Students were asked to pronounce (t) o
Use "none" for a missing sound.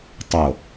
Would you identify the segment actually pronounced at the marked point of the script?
tˤ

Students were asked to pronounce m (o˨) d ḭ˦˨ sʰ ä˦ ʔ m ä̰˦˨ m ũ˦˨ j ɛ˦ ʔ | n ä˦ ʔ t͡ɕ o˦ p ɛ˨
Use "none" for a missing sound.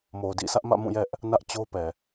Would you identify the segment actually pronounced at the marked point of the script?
o˨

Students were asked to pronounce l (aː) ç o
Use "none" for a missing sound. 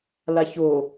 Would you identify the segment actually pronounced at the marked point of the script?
a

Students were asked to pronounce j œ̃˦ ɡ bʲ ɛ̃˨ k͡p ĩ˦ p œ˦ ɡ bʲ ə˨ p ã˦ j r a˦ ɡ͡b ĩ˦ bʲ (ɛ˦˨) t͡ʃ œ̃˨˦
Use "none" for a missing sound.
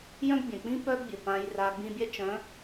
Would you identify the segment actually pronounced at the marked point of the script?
ɛ˦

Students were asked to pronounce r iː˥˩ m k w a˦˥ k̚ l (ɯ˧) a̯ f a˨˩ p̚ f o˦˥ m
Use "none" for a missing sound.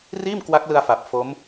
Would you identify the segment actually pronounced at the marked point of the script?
ɯ˧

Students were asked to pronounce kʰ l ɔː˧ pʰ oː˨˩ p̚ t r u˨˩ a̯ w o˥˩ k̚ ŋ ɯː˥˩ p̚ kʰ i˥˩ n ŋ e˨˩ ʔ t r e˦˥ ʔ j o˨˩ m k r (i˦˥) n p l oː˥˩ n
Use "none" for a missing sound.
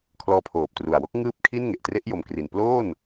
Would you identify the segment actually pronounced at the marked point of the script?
i˨˩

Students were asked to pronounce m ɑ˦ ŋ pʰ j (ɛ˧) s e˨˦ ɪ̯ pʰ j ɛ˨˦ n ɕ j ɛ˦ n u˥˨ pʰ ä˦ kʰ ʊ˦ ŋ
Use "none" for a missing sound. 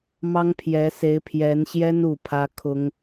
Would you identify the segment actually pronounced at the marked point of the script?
ɛ˨˦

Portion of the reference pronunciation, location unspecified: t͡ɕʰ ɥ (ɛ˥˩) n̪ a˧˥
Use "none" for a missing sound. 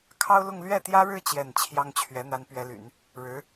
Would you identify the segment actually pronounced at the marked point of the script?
ɛ˧˥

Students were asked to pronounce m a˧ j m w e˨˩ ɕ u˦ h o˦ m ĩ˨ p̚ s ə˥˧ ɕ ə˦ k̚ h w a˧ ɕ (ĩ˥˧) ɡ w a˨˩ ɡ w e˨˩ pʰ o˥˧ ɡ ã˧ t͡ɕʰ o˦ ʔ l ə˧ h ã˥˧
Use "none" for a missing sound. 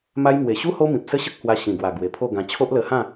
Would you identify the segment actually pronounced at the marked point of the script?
ĩ˨˩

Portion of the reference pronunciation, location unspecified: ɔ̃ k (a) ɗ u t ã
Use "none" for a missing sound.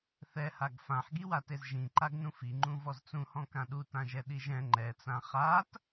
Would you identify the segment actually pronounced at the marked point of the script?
ã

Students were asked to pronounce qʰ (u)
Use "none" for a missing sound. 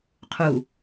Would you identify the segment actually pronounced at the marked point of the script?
u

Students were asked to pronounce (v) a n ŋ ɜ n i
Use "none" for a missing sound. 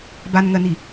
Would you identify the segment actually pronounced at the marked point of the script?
b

